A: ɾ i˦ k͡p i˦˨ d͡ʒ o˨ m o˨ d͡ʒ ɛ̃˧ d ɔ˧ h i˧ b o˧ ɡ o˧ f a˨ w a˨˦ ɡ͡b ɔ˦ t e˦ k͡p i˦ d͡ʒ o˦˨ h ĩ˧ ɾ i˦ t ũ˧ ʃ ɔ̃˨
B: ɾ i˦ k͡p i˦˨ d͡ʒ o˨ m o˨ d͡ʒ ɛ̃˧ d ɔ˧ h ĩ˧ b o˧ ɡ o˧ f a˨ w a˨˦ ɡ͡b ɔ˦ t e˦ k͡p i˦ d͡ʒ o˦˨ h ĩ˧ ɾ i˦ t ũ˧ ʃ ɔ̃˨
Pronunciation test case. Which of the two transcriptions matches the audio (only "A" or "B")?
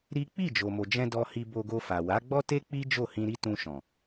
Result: A